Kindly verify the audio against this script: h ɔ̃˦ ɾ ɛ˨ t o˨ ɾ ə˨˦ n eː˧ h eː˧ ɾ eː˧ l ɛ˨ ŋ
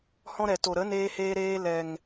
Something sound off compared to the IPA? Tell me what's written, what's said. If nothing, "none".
none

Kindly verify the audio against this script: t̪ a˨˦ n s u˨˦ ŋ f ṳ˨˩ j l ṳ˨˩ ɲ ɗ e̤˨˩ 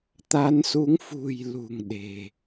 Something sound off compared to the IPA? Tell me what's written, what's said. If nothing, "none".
ɲ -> ŋ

